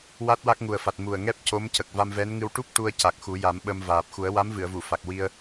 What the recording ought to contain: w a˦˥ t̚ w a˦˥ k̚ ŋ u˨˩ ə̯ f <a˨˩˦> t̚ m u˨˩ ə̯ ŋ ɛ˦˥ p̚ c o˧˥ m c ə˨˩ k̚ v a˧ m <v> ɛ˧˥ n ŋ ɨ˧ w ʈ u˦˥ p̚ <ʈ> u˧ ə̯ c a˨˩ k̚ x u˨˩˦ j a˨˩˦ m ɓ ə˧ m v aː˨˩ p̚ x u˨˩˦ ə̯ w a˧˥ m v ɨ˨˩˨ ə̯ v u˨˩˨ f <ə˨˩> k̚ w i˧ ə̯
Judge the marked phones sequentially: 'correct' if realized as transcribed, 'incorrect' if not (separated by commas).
incorrect, correct, correct, incorrect